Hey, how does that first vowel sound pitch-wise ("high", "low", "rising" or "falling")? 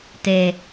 low